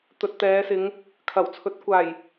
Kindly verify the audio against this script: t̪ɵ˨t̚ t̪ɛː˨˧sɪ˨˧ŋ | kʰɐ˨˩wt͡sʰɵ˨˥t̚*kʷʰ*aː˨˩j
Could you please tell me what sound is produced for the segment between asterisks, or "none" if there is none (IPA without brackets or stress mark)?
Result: kʷ